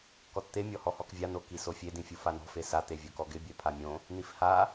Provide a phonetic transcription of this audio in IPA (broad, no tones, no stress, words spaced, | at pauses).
kɔtt̪e mʲɔhɔhɔkvʲa nokisofʲe dĩfʲufanɔ̤ fesa t̪evʲokɔɡɪ bʲɛpʰamʲõ | nifha